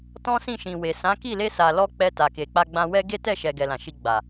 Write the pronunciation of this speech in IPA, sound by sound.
t ɔ̃˦ s ĩ˦˨ ʃ ĩ˨ w e˨ s ã˨˦ k i˦˨ l e˧ s a˨ l ɔ˧ k͡p ɛ˧ t a˨ k e˨ k͡p a˧ ɡ͡b ã˧ w ɛ˦ ɡ e˦ t ɛ˦˨ ʃ ɛ˨ ɡ ɛ˨ l ã˨ ʃ i˧ ɡ͡b a˨

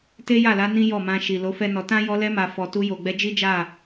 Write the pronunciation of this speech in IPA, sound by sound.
t e˦ j a˦˨ l a˨˦ n ĩ˦ j ɔ˦˨ m ã˧ ʃ i˨ l o˨˦ f ɛ˦ n ɔ˧ t ã˦ j ɔ˧ l ɛ˧ m a˨ f ɔ˨ t u˧ j o˨ ɡ͡b ɛ˧ d͡ʒ i˦ d͡ʒ a˦˨

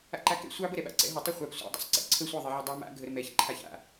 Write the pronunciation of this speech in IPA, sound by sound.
a̰ ǃ a k ɛ̰ sʷ ɑ b ə ɾ ɛ ɓ a̰ ǀ ɛ̰ ɦ ə tˤ ə χʷ a p sʷ a̰ dˤ a̰ sˤ ǀ ḭ ǀʰ ə sʷ ɑ ðˤ i ʕ ə dˤ a m a̰ ɡʱ ə ɾ ə m ɛ ç ǃʰ a ç a̰

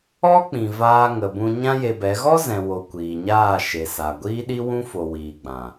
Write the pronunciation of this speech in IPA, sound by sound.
ɔ˦ k͡p ĩ˨ v aː˧ ŋ ə˨ b ũ˧ ɲ ã˦ j e˧ b ɛ˨˦ ɣ ɔ˦ z ɛ̃˨ w o˨ kʷ iː˨ ɲ aː˦˨ ʃ e˨ s a˨ ɡʷ iː˧ ɗ i˧ w ũ˧ f o˨ w iː˨ ɡ͡b ã˨

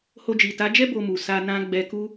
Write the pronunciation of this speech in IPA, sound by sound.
h o˧ d͡ʒ i˨ t a˨˦ d͡ʒ ɛ˦ b o˧ m u˨ s a˧ n ã˧ ɡ͡b ɛ˧ k u˦

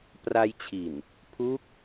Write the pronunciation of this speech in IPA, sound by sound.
p r a˧ j t͡ɕʰ i˨˩ n | pʰ u˦˥ k̚

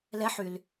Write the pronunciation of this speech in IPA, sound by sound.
l ɛ ħ y l

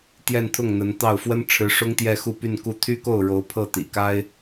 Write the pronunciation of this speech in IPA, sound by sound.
t̪ j ɛ˥˧ n t̪ʰ ʊ˥˩ ŋ n̪ ə˧˥ n t̪ ɑ˥˩ ʊ̯ f w ə˥ n ʈ͡ʂʰ ɻ̩˧˥ ʂ ʊ˥ ŋ t̪ j ɛ˥˧ x u˥˧ p y˥˧ n k u˥˩ t̪ʰ y˥ k o˥˩ ʊ̯ ɻ o˧˥ ʊ̯ pʰ ɤ˥˩ t̪ ḭ˨˩ k a˥ ɪ̯

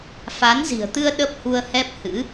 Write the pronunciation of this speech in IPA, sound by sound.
f a˨˦ n z i̤˨˩ ə̯ t̪ ɨ˧ ə̯ ɗ ə˦˥ p̚ h u˧ ə̯ h ɛ˦˥ p̚ h ɨ̰˧˥

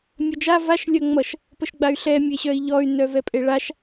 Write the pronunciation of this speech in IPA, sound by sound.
mʲ œ d͡ʒ a v a ʃ lʲ œ ŋ͡m ʌ ʃ | p ə ʃ ɡ͡b a y̯ ɬ ɛ mʲ e ɕ œ i̯ ʎ ɔ y̯ n œ v ɛ pʼ e ɭ a ʃ

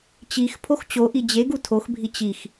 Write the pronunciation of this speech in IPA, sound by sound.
t͡ɕ i x pʰ o x t͡ɕ o ʔ i d͡ʑ e ɡ u tʰ o x bʱ i t͡ɕ i x

